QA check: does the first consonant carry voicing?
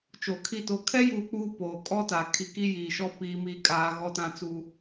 no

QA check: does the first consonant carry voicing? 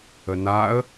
yes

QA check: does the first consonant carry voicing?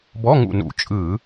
yes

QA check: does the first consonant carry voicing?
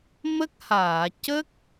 yes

